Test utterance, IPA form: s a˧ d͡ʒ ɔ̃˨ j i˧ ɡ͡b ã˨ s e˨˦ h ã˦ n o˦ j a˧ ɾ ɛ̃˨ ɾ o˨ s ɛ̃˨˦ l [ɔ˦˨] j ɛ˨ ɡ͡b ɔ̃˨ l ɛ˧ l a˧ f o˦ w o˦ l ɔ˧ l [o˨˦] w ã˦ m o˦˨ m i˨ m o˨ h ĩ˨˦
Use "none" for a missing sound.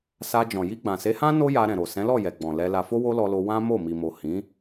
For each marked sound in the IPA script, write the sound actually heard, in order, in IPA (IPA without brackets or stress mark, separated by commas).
ɔ˦˨, o˧